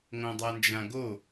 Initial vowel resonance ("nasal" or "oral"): nasal